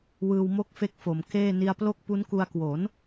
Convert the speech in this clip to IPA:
wɯː˧wmo˥˩k̚fe˦˥k̚fo˩˦m keː˥˩ ni˧a̯plo˥˩k̚ pu˦˥nku˧a̯ kwo˩˦n

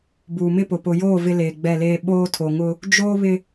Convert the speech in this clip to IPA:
buː˨mɪ˦pʊ˨ pʊ˨joː˦˨ vɪ˦leː˨ɡ͡bɛ˦˨leː˦ ɓoː˦tʰo˨ŋʊ˦ | d͡ʒoː˦ βɪ˦

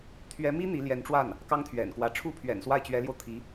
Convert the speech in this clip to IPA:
t̪ʰɥɛ˧˥mi˥ n̪i˧˥ljɛ˧˥n ʈ͡ʂwa˥˩n | kɑ˥ŋt̪ʰɥɛ̰˨˩nkwä˧˥ ʈ͡ʂʰu˥pʰɥɛ̰˨˩nswa˥˩ɪ̯ t͡ɕɥɛ˧˥ljo˧ʊ̯t̪ʰi˧˥

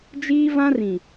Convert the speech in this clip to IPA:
d͡ʒiː˦vã˦rĩ˨

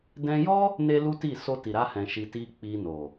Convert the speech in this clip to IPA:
dɛ̃˦ jɔ˦ | ne˦lu˦ti˦˨ so˧ti˨ɾa˧hɛ̃˨ ʃi˧ti˦ k͡pi˧no˨

